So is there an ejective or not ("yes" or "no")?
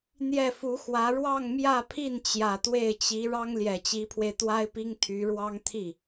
no